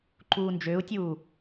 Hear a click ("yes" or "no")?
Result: yes